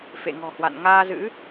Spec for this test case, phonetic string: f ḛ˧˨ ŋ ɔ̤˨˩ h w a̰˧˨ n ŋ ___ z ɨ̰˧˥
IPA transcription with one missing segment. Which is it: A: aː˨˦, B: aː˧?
B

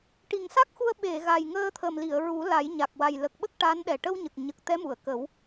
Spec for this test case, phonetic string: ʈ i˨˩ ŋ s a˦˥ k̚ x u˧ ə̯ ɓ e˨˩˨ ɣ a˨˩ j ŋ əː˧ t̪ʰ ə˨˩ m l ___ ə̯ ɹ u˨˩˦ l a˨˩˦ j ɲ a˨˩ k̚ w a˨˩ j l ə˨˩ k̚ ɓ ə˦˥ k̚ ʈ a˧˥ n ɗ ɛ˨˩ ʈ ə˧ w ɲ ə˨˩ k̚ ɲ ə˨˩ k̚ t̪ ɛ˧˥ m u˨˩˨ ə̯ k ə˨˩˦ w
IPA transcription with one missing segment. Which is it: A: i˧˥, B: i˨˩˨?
B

